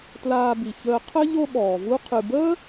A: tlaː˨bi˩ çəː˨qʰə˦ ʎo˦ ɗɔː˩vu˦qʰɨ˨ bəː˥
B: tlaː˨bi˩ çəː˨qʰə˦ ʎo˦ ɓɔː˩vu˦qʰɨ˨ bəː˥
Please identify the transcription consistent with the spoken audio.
B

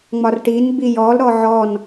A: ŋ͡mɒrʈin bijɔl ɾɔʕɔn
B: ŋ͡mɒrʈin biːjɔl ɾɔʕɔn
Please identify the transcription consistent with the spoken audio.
A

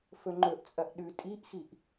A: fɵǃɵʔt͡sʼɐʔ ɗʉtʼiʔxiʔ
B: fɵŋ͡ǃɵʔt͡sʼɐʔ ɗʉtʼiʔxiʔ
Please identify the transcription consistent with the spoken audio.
B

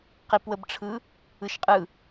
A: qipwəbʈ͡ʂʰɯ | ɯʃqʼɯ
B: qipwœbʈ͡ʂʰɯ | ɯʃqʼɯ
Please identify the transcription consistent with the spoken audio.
A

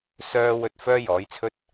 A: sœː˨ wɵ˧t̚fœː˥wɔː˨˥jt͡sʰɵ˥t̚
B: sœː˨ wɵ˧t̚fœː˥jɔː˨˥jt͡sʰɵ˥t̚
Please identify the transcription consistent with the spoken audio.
B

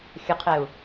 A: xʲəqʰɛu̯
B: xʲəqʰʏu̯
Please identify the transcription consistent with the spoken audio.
A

